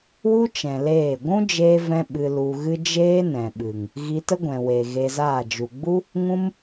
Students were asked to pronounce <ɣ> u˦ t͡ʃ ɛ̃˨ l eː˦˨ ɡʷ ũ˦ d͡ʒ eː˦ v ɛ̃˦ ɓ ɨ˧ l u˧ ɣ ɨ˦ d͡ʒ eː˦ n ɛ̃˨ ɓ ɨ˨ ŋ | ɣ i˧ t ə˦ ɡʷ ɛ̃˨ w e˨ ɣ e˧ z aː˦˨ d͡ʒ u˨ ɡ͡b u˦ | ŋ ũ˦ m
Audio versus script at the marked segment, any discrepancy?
yes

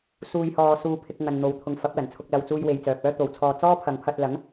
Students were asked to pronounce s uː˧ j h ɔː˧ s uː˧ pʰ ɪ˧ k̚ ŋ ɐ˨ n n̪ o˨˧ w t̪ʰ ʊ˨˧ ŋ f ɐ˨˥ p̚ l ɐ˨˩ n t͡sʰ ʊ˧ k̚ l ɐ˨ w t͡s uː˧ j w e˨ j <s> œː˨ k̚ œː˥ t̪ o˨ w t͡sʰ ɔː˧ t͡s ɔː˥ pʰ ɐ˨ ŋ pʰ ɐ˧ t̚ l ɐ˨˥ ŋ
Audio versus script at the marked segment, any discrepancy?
yes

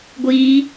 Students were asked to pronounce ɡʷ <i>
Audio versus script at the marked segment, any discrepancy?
no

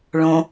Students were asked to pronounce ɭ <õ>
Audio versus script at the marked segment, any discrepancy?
no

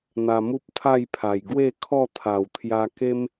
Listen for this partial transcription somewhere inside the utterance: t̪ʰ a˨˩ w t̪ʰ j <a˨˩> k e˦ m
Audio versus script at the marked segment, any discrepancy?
yes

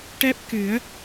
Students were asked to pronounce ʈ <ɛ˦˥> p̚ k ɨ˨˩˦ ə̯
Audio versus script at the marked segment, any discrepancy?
no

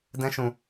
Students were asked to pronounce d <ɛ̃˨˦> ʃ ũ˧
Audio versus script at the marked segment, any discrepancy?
yes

